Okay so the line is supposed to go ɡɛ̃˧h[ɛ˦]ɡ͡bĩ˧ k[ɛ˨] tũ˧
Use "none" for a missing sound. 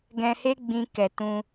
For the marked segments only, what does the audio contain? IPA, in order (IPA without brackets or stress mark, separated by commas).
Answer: e˦, ɛ˨